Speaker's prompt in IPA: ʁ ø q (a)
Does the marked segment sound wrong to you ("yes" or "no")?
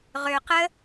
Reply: yes